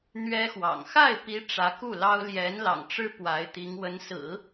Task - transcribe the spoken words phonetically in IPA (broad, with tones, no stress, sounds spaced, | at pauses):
n̪ ɥ ɛ˥ x w ɑ̰˨˩ ŋ x a˥˩ ɪ̯ p i˧˥ ʈ͡ʂ ä˧˥ k u˥˩ l ɑ˥ ʊ̯ l j ɛ˧˥ n l ɑ̰˨˩ ŋ ʈ͡ʂ ɻ̩˥ p w a˧˥ ɪ̯ t̪ i˧˥ ŋ w ə˧˥ n s ɹ̩˨˩˦